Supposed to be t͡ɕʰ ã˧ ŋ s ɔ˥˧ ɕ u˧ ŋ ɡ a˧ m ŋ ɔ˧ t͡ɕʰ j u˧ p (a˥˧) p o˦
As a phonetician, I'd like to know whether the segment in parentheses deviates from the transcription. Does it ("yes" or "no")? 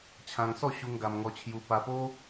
yes